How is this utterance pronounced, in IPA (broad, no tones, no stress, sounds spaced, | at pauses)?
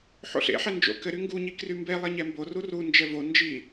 ħ o̰ ɬ ḛ ħ ɛ n d͡ʒ o̰ k ɘ ɾ y ŋ ɡ u ɲ i k r y m b e lˠ e ɲ ɛ m b o r u r u n d͡ʒ ɛ v o n d͡ʒ i